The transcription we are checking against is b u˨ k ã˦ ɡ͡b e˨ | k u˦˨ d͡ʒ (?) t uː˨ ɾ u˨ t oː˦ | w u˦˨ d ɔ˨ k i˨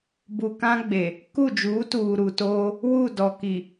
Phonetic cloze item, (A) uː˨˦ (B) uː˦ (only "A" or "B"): A